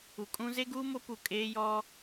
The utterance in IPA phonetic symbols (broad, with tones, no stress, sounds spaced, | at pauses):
u˨ kʼ ũ˦ z e˦ ɡ uː˦ m o˦ p u˨ kʼ eː˦ j ɔ˦